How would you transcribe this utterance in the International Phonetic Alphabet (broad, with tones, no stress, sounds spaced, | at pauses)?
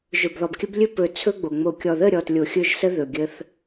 ʒ ɵ˨ b ð ɔ˨ b kʲ ə˦ b lʲ ɵ˦ p ɵ˨ t͡sʰ ɵ˦ ɡ͡b o˨ ŋ͡m o˨ kʲ ɔ˨ ð ə˦˨ ɾʲ ɔ˨ t lʲ o˨ xʲ ɵ˦˨ ʒ s ə˦ ð ɵ˨ ɡʲ ə˦ θ